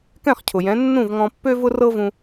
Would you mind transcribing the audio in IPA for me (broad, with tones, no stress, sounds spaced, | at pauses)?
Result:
k ɛ̃˥˩ χ cʰ ʊ˩ j ɛ̃˩˥ nː ũ˥˩ v ŋ ɔ̃˧ pː ø˥ v ʊ˥ r ɤ˥ v ũ˧